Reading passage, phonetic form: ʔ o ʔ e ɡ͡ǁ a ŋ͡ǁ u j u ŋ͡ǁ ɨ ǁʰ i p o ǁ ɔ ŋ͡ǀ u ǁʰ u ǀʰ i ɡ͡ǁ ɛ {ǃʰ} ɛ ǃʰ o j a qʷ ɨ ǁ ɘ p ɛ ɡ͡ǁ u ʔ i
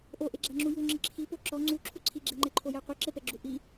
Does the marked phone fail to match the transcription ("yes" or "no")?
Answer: yes